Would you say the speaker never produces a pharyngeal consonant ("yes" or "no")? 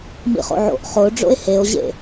no